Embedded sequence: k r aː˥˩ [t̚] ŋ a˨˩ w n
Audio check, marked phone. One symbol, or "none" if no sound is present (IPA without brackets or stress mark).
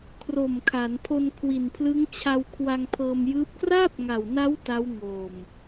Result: p̚